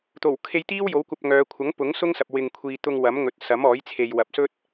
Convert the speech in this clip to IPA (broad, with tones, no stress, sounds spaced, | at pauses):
t̪ o˨˩ w kʰ e˧ j t̪ iː˥ w j o˨˥ w kʷ ɐ˧ p̚ ŋ œː˨˧ kʷʰ ɐ˨˥ ŋ p ʊ˨˥ ŋ s ʊ˥ ŋ s ɐ˨ p̚ w ɪ˨ ŋ kʷʰ iː˨ t̪ ʊ˧ ŋ w ɐ˨˥ m ŋ ɵ˨˥ t̚ s ɐ˨˥ m ɔː˨˥ j t͡sʰ e˨ j w ɐ˨ p̚ s ɵ˥ t̚